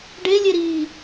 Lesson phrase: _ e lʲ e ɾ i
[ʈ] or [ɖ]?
ɖ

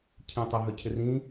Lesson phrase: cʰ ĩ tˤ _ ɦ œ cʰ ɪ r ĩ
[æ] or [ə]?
ə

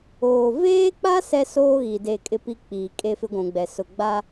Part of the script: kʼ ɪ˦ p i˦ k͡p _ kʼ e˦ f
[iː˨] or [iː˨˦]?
iː˨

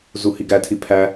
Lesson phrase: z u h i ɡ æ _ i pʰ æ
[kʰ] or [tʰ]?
tʰ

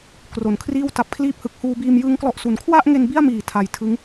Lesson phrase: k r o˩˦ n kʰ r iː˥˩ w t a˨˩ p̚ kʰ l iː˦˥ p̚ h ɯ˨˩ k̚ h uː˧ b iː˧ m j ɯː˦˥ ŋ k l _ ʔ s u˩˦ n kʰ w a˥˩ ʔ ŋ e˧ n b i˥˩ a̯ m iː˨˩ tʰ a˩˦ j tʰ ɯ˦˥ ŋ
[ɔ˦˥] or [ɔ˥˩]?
ɔ˦˥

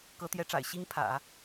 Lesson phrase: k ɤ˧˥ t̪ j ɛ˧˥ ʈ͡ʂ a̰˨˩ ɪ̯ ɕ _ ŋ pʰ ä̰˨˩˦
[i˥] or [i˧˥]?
i˥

